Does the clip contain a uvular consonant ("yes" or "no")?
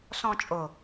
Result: no